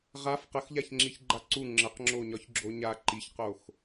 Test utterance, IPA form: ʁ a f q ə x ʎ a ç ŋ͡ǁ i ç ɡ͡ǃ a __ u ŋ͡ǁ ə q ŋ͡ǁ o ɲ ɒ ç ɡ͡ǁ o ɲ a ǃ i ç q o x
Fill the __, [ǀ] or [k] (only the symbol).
ǀ